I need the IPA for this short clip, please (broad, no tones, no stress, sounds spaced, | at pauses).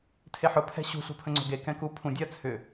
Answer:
tʰ e ħ ʊ pʰ ɛ̤ ɕ ṳ ɬ ṳ pʰ ə̃ ŋ͡ǀ o̤ ɡ e k ɛ̃ k u pʰ ũ dʲ ɜ t͡sʰ ʏ